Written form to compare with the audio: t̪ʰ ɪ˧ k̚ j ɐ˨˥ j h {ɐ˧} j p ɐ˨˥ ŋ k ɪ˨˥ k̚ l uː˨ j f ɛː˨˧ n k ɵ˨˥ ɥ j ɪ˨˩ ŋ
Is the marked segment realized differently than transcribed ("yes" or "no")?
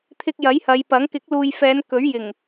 yes